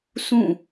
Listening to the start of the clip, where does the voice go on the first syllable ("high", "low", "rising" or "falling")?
falling